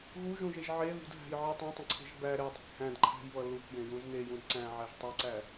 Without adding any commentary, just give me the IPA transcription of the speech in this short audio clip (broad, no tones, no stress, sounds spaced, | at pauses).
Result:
ɣ u ʒ ũ ʒ e ʒ ʕ e ð ṳ d ɦ æ̤ j ʕ ə tˤ ũ tˤ ə̃ ǀʰ e̤ ʒ b æ ɾ e dˤ e̤ k h æ̃ d ǃʰ æ̤ j β ʌ l u k j ẽ j ũ z n e j ũ d ǀ æ̃ ʕ æ ʒ tˤ e ǀ æ